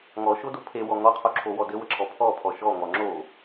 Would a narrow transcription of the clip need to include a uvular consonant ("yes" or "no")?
yes